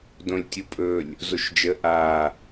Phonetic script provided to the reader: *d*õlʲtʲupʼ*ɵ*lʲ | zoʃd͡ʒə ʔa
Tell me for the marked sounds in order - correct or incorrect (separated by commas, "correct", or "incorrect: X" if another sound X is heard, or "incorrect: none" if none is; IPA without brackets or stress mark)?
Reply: correct, correct